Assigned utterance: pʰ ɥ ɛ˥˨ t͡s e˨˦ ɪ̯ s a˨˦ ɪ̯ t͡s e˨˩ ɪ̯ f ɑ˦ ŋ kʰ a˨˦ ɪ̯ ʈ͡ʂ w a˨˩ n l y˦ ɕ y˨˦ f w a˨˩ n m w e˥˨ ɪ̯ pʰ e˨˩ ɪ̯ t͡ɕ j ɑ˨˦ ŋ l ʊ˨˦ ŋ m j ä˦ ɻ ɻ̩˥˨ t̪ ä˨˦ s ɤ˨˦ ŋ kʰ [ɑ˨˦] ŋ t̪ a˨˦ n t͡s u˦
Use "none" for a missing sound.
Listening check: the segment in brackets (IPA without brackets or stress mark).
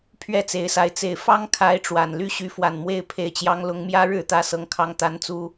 ɑ˨˦